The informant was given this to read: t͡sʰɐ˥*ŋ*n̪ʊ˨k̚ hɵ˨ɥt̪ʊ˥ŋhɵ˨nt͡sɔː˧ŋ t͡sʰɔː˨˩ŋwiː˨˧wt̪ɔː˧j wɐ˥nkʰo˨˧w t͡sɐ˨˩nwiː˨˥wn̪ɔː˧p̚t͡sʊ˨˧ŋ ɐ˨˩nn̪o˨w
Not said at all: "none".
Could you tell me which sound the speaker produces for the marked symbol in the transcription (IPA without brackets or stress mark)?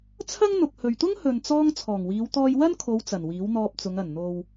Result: ŋ